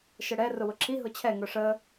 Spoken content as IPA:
ʃ ə ɽ ɛ r ʊ w ʊ ǁʰ i ɦ ʊ t͡ɕʰ ɛ ŋ ʊ ʂ ə

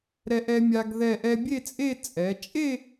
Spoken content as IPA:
ɾ ɛ˧ ʔ ɛ˧ mʲ a˧ ɡ ð ɛ˧˩ ʔ ɛ˧ bʲ e˥˧ t͡sʼ e˥˧ t͡sʼ ɛ˩˧ t͡ʃʼ e˥˧

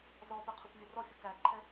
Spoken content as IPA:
z ɔ p ɘ qʰ u kʷ vʲ ɘ r ɔ fʲ u k æ ǃʰ ɛ

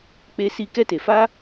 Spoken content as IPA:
k͡p e˧ s i˧ k ɛ˦ t e˨ f a˦

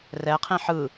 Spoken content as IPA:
r ɛ qʰ ĩ ħ ɯ

